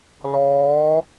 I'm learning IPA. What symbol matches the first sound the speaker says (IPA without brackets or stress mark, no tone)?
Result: l